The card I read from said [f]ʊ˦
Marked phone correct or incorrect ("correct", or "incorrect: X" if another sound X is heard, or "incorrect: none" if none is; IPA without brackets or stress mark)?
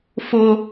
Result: correct